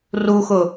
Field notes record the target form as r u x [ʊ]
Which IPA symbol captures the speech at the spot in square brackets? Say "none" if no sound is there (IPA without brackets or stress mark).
ʊ